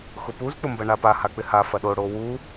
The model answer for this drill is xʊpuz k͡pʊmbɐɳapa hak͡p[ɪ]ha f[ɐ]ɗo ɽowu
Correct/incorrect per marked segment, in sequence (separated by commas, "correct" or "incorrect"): correct, correct